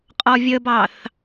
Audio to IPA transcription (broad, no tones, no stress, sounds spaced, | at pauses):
qʼ ɔ vʲ ə b ɑ θ